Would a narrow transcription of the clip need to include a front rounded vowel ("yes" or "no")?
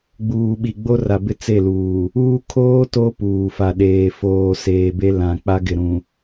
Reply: no